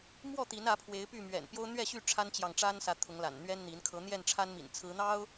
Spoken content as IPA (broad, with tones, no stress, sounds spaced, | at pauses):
m w ɔ˥˨ t̪ i˨˦ n ä˨˦ pʰ w e˨˦ ɪ̯ p y˥˨ m ɥ ɛ̰˨˩ n p j o˦ ʊ̯ n̪ ɥ ɛ˥˨ ɕ y˥˨ ʈ͡ʂʰ a˦ n t͡ɕ j ɑ˨ ŋ ʈ͡ʂ a˦ n s ä˨˦ t̪ʰ ʊ˨˦ ŋ l a̰˨˩ n n̪ ɥ ɛ˦ n n̪ i˨˦ n kʰ ɤ˨˦ n̪ j ɛ˥˨ n ʈ͡ʂʰ a˦ n m ḭ˨˩ n t͡sʰ ɹ̩˨˦ n̪ ɑ˦ ʊ̯